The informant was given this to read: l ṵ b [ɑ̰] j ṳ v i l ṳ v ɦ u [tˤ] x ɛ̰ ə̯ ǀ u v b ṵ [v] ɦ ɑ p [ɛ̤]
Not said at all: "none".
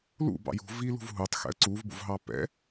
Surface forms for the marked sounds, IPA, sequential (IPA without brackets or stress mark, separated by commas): ɑ̰, tˤ, v, ɛ̰